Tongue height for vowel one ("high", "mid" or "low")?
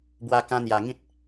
low